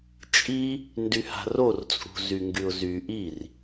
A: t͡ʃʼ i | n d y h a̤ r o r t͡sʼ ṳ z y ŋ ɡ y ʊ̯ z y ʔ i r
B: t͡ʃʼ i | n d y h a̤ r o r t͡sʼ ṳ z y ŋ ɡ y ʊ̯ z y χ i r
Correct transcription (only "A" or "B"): A